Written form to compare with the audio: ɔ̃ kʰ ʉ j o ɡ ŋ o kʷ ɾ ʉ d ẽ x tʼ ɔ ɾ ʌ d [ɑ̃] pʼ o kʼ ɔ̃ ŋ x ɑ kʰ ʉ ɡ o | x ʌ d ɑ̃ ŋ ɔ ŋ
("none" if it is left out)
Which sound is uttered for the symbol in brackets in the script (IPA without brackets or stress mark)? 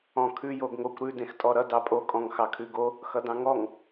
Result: ɑ